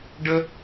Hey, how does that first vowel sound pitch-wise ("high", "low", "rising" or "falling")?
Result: high